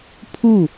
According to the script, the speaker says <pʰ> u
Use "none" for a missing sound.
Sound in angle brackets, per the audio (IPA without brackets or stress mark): pʰ